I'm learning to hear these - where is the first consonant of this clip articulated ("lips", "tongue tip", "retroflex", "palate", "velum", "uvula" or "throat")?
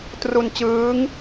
tongue tip